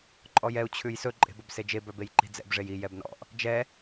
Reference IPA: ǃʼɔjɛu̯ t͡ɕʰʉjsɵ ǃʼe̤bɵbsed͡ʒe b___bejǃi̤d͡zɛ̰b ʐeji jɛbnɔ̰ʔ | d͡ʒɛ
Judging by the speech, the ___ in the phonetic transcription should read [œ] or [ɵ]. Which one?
œ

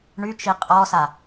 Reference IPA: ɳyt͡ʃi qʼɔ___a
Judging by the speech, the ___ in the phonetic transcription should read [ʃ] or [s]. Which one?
s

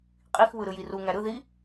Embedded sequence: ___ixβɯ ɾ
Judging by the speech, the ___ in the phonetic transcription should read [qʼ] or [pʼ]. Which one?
qʼ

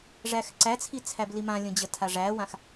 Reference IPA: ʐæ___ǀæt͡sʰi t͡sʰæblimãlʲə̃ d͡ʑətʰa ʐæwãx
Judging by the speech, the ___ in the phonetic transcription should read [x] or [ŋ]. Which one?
x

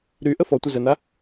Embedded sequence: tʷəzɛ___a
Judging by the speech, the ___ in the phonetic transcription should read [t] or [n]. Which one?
n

